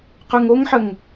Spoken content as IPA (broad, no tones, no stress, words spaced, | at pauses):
qʉŋoŋħəŋ